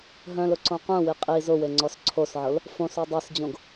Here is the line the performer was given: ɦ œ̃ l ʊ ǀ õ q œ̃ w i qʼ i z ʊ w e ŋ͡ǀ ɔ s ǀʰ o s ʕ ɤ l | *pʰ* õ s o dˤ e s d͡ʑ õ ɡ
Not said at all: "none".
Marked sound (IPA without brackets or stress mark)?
f